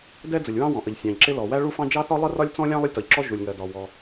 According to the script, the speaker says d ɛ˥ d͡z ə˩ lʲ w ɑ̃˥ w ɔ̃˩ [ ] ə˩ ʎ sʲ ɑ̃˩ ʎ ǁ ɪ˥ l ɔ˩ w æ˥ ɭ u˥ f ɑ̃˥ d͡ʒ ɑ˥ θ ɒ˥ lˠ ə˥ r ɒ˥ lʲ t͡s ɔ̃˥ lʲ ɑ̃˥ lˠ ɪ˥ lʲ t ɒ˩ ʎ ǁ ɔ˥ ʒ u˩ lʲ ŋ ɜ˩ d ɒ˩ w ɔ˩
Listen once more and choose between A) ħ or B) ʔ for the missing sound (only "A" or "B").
B